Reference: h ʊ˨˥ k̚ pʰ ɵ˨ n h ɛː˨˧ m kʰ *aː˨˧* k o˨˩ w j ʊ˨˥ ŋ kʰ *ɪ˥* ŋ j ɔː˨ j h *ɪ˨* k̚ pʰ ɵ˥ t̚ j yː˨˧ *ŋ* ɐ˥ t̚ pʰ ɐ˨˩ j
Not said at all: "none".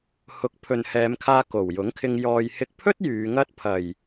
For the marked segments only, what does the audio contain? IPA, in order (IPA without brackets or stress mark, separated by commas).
aː˧, ɪ˧, ɪ˧, ŋ